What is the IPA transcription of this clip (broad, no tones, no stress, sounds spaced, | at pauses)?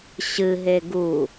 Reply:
ɕ ɨ ɦ e ɡ u